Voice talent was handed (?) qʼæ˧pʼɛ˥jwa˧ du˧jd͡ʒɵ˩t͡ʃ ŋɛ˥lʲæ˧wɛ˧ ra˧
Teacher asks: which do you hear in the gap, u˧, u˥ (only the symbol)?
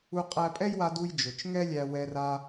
u˧